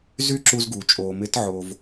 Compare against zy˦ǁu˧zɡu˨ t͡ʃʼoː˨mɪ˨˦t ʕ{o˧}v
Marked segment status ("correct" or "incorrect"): correct